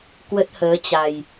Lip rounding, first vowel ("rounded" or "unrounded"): unrounded